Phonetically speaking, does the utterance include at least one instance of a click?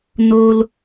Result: no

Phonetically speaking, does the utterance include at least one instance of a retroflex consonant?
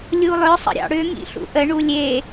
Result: yes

